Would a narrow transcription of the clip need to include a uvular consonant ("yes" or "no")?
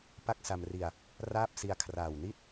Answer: no